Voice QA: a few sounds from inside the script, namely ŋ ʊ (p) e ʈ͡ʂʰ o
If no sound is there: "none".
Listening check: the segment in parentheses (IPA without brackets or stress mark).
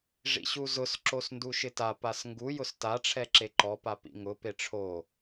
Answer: p